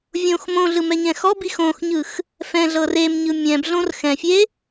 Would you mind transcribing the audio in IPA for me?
vʲ õ x m õ ɮ ɯ m ɛ ɲ ɛ̃ x ɔ b i x õ x ɲ ɯ x | f ɛ̃ ɮ ɤ r e m ɲ ɯ mʲ ɛ̃ b ɮ õ r x ɛ̃ fʲ e

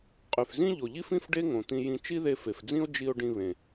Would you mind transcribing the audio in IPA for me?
qʼ y˩ f z ĩ˥ ʎ o˩ ʎ i˥ f ĩ˥ f ɖ e˥ ŋ õ˩ t̪ ĩ˧ j ĩ˧ t͡ʃ i˥ ð e˧ f e˩ f d͡z ĩ˥ o̯ d͡ʒ i˧ o̯ ɖ ĩ˧ β ẽ˩

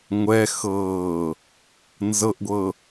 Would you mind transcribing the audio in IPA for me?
ŋʷ ɛ x ɤː | n z ɤ ʔ ɡʷ ɤ

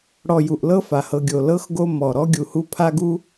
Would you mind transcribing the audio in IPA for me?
ɽ ɔ˨ j u˩ ʔ l ɤ˦ f a˩ h ɤ˨ ɡʲ o˩ l ɤ˦ x ɡ o˦ m ɔ˩ ɾ ɔ˦ ɡʲ u˨ h u˦ pʰ a˥ ɡ u˥

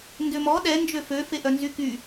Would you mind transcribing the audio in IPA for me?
n d ø m ɔ ɗ ɛ n d͡ʒ ø f ø f e ʔ œ n z y k y

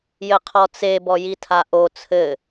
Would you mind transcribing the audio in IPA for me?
j ɘ qʰ ɔ t͡s e b ɔ j i tʰ a ʔ o t͡sʰ ɘ

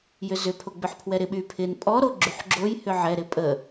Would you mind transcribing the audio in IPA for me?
j ʏ z ʏ pʰ o ɡ͡b ʏ ħ pʰ w ɛ ɾ ɪ ɓ y pʰ ɪ n pʼ ɔ ɾ o ɡ͡ǁ y ħ ɡ͡ǁ o j h ʏ ʕ ɛ ɾ ɪ pʼ ə

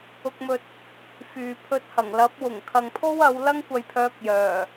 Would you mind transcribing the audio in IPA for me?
ʊ˧ k̚ m ɵ˧ t̚ | f yː˨ pʰ ɵ˧ t̚ h ɐ˨˩ ŋ l ɐ˨˥ p̚ w ʊ˨˩ ŋ kʰ ɐ˨ ŋ pʰ o˥ w ɐ˨˧ w l ɐ˥ ŋ kʷ ɐ˧ j pʰ œː˧ k̚ j œː˨˩

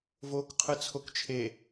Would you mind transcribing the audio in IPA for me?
v oː k qʰ ɯ t͡sʰ o k t͡ʃʰ e

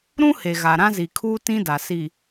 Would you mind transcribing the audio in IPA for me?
ɾ ũ˦ h e˨ ɣ a˨ ɾ ã˦ z i˨ kʰ uː˦ t ĩ˦ d a˨ s i˨

